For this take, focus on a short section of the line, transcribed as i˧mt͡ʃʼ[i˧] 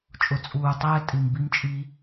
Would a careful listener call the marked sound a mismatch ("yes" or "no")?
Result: no